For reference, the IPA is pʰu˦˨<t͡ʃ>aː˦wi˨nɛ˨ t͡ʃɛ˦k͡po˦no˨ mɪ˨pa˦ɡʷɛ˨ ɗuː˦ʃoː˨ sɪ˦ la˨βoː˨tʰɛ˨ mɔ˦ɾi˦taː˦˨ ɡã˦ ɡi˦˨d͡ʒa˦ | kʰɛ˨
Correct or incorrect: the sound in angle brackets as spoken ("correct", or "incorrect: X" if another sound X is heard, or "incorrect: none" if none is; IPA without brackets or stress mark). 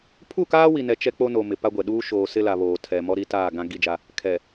incorrect: k